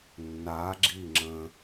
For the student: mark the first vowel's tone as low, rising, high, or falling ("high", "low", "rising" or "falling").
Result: rising